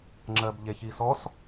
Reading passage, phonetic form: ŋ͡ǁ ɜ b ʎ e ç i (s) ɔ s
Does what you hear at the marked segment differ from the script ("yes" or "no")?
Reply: no